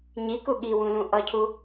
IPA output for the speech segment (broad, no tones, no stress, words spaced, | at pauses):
ɲiku ɠiwũlũ ʔʌcʰu